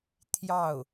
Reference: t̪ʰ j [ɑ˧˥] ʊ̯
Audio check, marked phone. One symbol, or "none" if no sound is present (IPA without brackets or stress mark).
ɑ˥˩